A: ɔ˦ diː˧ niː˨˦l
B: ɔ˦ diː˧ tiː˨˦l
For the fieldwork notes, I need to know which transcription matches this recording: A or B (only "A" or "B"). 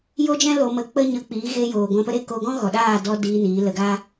A